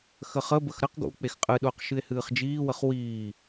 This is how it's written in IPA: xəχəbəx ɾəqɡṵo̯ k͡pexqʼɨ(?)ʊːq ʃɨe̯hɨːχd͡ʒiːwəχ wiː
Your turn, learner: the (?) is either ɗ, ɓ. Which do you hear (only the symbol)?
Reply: ɗ